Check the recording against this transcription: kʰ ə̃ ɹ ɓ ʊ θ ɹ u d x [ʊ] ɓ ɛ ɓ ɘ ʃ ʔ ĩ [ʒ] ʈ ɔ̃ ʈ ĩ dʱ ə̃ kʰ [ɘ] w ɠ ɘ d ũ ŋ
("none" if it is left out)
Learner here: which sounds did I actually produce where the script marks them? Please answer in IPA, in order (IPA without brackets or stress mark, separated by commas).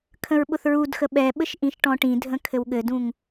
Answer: ə, ʃ, ɘ